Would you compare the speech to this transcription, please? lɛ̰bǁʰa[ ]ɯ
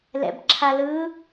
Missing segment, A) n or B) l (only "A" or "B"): B